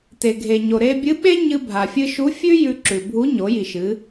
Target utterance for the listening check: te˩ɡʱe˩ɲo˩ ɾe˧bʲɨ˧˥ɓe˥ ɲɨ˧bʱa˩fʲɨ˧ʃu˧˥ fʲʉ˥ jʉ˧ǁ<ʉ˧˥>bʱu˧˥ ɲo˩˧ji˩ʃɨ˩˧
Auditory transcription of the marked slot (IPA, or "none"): ʉ˩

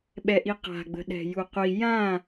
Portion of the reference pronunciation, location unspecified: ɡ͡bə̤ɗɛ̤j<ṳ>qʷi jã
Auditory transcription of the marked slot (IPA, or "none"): u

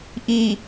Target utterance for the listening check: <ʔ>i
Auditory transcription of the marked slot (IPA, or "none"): ʔ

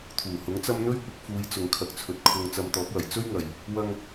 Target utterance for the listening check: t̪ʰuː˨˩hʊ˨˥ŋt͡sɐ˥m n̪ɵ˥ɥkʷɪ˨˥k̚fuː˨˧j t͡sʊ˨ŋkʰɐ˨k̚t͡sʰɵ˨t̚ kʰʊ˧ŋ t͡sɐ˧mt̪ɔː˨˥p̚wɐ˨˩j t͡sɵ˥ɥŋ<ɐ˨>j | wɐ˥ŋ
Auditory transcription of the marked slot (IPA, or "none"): ɐ˨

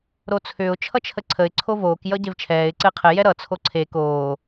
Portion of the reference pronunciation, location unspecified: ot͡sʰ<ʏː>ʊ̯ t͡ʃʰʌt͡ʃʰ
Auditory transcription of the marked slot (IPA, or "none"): ʏː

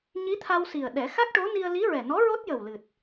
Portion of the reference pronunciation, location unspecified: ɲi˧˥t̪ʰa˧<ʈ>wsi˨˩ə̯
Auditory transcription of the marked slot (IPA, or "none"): none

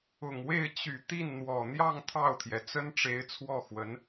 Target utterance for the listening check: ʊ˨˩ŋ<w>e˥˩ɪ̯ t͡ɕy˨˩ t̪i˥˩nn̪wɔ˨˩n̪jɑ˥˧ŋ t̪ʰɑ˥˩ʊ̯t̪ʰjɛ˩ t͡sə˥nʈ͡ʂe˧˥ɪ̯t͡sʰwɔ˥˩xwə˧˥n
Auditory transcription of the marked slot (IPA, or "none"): w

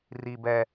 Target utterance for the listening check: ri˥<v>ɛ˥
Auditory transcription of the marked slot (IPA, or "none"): b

